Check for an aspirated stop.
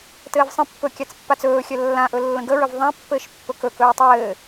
absent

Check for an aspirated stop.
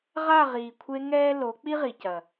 present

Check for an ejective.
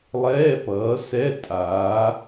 present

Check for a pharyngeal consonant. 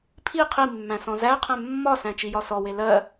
absent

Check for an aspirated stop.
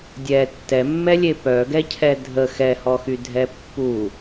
present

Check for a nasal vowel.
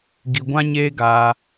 present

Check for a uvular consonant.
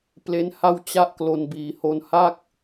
absent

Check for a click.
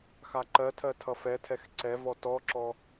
present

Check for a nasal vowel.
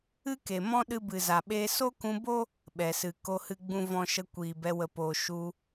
present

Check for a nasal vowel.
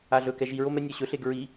absent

